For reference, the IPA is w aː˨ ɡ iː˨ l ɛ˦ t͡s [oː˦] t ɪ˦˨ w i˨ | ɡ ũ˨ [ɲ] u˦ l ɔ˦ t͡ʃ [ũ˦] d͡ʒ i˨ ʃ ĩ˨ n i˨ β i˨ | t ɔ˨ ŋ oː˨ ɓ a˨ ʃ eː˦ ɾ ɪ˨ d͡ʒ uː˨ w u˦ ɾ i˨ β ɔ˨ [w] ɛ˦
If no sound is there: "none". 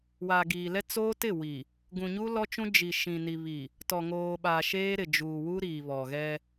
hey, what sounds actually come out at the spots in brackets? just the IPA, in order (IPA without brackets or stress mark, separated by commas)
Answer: oː˦, ɲ, ũ˦, ɣ